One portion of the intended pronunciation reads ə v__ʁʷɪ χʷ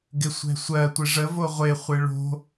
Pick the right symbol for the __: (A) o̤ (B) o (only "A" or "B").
B